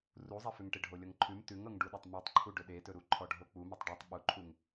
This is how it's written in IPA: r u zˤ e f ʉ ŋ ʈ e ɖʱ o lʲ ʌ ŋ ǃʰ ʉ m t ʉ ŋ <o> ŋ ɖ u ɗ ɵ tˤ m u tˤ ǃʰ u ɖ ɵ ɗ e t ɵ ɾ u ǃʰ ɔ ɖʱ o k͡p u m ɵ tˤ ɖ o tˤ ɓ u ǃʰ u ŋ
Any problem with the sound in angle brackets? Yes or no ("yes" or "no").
yes